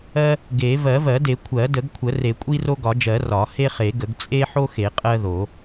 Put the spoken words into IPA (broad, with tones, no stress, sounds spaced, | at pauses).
ɜ˦ | ɡ e˨˩˦ v ɜ˨˩˦ v ɜ˨˩˦ d e˨˩˦ kʷʰ ɜ˨˩˦ d ə˨˩˦ ɡ kʷʰ ə˨˩˦ r e˨˩˦ kʷʼ i˦ r o˦ ɡ ɒ˨˩˦ d͡ʒ ɜ˨˩˦ r ɒ˨˩˦ h e˦ χ e˨˩˦ ɡ ə˨˩˦ ɡ t͡sʼ e˦ ħ o˦ x e˨˩˦ qʼ ɜ˦ ð o˨˩˦